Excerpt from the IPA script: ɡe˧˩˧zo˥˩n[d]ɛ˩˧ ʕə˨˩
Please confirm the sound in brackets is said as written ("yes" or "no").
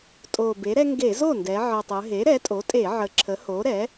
yes